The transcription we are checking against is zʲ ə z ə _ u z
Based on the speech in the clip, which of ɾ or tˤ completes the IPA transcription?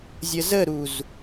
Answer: ɾ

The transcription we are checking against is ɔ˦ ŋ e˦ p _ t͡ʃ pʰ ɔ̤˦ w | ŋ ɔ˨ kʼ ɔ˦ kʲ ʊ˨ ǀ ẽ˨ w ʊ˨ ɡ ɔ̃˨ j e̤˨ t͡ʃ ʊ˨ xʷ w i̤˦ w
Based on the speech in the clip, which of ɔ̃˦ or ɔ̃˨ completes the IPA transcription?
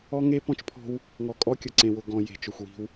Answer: ɔ̃˦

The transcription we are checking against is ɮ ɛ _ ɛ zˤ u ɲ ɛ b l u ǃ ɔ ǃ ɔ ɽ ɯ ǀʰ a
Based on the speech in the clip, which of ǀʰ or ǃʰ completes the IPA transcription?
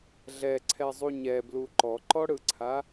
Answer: ǀʰ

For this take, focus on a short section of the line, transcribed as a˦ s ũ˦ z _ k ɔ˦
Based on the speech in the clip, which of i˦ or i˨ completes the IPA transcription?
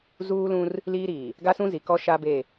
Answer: i˨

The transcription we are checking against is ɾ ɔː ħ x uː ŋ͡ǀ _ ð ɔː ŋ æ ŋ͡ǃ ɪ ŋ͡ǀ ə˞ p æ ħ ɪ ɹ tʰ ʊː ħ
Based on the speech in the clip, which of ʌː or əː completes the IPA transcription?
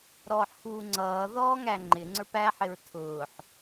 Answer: ʌː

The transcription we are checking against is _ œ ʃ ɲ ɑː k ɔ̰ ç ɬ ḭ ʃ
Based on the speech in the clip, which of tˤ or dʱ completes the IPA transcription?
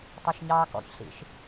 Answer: tˤ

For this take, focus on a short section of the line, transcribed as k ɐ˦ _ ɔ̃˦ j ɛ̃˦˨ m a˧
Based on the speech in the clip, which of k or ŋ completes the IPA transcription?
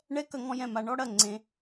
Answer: ŋ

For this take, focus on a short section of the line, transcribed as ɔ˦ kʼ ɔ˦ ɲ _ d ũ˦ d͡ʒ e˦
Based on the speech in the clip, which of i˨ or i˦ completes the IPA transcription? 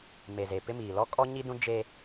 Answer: i˦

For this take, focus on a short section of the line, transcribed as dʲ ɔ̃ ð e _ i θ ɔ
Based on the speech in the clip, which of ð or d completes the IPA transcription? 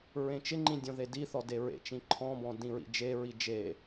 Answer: d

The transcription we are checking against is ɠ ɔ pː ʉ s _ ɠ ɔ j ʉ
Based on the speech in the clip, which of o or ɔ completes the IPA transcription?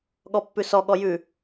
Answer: ɔ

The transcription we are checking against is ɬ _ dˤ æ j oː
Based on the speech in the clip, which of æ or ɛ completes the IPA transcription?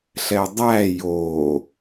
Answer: ɛ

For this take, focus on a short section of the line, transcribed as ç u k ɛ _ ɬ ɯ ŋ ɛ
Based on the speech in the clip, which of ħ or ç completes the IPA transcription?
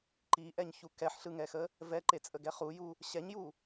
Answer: ħ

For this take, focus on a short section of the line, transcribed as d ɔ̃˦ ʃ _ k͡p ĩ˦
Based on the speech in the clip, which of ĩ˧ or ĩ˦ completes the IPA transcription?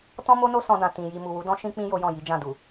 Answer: ĩ˦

